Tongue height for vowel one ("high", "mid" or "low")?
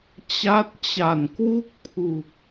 low